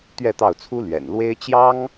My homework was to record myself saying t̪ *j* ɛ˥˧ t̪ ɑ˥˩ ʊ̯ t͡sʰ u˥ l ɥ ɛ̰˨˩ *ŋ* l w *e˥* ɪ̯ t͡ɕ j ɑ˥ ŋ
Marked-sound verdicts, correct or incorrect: incorrect: ɥ, incorrect: n, correct

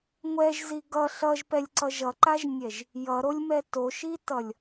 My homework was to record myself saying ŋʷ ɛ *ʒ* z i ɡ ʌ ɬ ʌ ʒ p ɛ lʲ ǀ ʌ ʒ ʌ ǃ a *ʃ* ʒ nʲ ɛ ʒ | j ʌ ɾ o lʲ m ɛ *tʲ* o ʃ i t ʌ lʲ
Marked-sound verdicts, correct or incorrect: correct, incorrect: none, incorrect: t

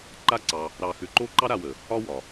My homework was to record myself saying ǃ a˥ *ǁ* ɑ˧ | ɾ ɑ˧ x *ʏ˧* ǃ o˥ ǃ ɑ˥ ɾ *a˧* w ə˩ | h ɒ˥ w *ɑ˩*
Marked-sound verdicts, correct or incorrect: incorrect: ǀ, correct, correct, incorrect: ɒ˩

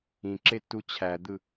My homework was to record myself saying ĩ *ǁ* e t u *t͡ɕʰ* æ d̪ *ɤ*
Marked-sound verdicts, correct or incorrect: correct, correct, incorrect: ɯ

